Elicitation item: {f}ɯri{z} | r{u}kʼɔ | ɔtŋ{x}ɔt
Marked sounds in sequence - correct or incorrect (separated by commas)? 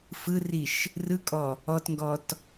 correct, incorrect, incorrect, incorrect